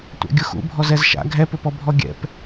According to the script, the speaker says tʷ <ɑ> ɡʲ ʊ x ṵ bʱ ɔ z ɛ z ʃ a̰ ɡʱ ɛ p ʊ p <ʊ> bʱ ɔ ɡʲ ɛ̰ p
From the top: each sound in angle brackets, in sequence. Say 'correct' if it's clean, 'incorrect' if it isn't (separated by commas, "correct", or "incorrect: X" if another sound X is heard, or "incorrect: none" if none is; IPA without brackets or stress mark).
incorrect: ɑ̰, incorrect: ɔ